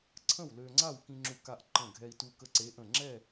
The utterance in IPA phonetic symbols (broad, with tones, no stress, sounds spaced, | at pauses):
ǀʰ ə̃˥˨ w l ø˧ ŋ͡ǀ a˥˨ w k ĩ˧ ŋ͡ǁ u˧˩ k a˧ ʔ ǃ ə̃˧˩ ɡʱ ɛ˧ i̯ t u˧ k ə˧ ǀ e˨˥ ʔ ə̃˧˩ ŋ͡ǁ ɛ˥˨